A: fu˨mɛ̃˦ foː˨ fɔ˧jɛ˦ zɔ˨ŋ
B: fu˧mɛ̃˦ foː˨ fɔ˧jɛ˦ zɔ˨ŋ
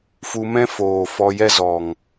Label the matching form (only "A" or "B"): B